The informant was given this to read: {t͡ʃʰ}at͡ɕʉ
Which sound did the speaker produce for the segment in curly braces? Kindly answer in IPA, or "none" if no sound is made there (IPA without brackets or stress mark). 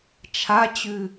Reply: t͡ʃʰ